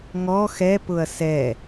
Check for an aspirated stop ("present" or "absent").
absent